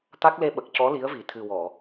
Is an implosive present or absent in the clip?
present